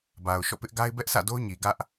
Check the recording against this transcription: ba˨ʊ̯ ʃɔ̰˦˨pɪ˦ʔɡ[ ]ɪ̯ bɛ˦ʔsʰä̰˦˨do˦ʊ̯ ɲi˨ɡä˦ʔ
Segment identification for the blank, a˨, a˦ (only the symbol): a˦